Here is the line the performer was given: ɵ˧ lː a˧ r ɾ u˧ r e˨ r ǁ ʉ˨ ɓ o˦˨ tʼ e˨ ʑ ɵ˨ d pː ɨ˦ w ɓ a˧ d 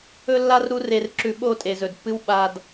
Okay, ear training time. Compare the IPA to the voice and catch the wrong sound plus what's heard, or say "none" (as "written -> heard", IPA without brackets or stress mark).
ʑ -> z